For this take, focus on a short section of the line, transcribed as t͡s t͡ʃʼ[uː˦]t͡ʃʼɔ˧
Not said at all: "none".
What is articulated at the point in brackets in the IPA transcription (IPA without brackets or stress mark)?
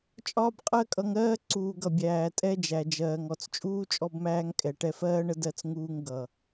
uː˦